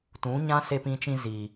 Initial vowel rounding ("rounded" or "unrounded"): rounded